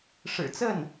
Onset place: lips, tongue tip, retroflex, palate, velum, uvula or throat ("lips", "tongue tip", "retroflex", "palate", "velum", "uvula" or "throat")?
retroflex